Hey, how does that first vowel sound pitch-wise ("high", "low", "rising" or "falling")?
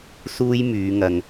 high